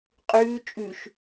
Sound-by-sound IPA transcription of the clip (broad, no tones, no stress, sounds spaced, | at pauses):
qʼ ʉː t͡ʃʼ ʉ ʃ